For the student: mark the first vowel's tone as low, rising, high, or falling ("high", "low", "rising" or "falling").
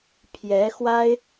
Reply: rising